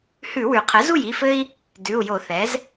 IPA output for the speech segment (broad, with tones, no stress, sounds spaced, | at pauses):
h ʉ˧˩˧ w ʉ˩ qʰ ɘ˩˥ z u˥˩ j i˩˧˩ f ɘ˦ i̯ | d ʉ˩˧˩ u̯ j o˧˩˧ θ ɛ˩˥ z